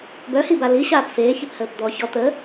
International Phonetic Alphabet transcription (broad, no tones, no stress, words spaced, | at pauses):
bœhiba liɕaːp feːçiphəːp d̪ɔ çɔ t̪ə